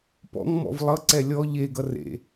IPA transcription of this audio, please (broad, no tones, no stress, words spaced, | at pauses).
pɔ̰ŋmɔ̰v lˠʌǀɛ lʲɔ ʎeɡʌ rḛ